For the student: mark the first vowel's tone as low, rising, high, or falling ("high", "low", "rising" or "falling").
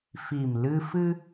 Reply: low